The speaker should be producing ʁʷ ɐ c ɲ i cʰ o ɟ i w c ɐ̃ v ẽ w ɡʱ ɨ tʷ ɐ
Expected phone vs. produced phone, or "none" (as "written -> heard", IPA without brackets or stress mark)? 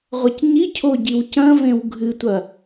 none